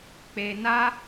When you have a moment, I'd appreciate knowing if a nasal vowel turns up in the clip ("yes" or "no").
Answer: no